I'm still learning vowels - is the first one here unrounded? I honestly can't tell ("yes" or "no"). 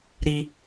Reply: yes